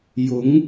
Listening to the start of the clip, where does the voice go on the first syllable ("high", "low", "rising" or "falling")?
rising